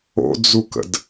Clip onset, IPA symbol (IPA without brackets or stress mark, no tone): o̰